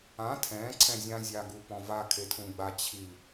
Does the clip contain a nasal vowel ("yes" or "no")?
yes